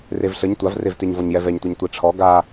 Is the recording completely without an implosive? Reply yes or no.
yes